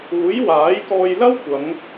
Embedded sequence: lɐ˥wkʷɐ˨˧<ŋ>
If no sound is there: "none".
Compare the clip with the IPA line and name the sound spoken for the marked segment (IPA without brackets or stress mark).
ŋ